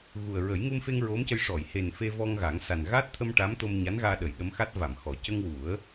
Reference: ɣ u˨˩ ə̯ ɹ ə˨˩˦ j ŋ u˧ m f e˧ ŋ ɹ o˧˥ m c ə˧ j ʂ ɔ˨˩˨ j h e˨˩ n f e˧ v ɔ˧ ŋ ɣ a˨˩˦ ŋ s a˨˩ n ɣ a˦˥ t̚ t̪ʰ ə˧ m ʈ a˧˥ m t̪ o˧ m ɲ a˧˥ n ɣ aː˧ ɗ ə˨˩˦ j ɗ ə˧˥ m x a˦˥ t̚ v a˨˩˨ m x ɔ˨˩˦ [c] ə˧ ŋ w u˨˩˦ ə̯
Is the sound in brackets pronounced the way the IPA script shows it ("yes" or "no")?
yes